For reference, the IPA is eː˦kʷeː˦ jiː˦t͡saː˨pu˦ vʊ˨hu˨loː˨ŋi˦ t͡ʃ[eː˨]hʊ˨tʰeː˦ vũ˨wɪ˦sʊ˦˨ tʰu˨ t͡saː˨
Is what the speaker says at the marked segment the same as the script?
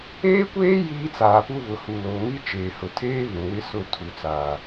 yes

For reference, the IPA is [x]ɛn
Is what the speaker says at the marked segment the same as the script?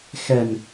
yes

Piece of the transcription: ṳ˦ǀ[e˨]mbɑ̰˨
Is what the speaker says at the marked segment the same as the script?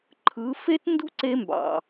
no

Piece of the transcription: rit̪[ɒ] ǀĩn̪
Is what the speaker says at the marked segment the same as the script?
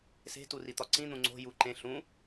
yes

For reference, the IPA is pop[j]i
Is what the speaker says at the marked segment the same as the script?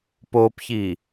no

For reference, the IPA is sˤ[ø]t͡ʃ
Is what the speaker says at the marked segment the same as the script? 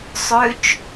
yes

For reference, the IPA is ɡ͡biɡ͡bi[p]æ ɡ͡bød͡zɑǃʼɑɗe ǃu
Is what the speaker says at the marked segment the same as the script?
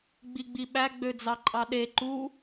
no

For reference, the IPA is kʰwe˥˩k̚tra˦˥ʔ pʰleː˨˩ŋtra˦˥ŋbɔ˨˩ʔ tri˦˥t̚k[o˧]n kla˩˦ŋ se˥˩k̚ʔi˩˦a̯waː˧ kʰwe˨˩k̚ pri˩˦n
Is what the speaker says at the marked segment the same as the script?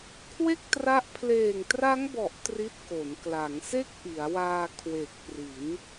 no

